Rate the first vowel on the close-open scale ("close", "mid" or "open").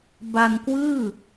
open